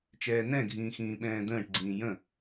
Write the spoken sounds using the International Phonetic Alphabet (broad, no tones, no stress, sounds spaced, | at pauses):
t͡ʃ ɛː n ɛ̃ ɡʱ ĩː x ĩː ɓ ɛ̃ː d̪ ə̃ː ʈ ɡ͡ǀ ĩː j ə̃